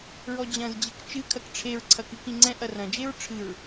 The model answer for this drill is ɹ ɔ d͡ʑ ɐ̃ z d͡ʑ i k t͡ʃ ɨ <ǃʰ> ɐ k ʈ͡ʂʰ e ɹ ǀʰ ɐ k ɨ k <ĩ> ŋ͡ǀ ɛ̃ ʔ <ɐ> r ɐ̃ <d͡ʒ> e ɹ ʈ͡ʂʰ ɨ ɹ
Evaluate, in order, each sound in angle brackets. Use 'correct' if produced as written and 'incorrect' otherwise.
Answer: incorrect, correct, correct, correct

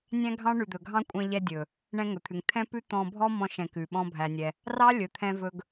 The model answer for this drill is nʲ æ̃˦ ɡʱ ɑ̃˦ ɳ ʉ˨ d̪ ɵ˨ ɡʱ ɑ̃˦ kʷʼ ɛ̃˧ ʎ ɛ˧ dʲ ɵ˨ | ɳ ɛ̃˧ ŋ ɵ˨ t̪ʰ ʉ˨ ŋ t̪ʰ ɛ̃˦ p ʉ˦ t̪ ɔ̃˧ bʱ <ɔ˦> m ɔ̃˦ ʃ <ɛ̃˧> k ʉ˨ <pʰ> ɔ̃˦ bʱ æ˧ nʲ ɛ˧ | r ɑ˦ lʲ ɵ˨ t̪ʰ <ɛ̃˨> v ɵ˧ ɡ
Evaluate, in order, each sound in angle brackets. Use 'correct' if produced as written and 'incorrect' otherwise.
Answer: correct, correct, incorrect, incorrect

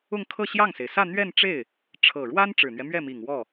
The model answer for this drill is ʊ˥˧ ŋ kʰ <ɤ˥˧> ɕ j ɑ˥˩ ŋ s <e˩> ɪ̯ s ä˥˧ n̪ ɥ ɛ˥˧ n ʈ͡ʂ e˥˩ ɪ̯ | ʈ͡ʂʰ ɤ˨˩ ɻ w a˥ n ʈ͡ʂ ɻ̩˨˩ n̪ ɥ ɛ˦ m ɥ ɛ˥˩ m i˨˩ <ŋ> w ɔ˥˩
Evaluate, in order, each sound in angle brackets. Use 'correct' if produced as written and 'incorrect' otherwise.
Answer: correct, correct, correct

